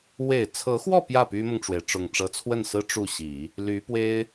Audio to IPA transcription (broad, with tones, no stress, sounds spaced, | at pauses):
w e˨˩ ɪ̯ t͡sʰ ɤ˧˥ x w ɔ˥˧ p j ä˥˩ p y˥ m ʊ˨ ŋ ʈ͡ʂ w e˩ ɪ̯ ʈ͡ʂ ʊ˨˩ ŋ ʈ͡ʂ ɤ˧˥ t͡sʰ w ə˥˩ n s ɹ̩˥ ʈ͡ʂ u˥˩ ɕ i˨˩˦ | l y˧˥ p w e˥ ɪ̯